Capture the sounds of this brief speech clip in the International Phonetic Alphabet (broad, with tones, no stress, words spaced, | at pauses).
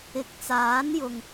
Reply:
ɪ˨˥k̚t͡saː˨˥n jʊ˨ŋ